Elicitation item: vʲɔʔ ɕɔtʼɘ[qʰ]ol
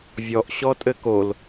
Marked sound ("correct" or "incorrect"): incorrect